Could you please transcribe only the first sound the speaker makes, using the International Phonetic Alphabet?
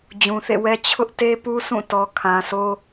d͡ʑ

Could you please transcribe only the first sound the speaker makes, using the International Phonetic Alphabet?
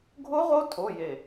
ɡʱ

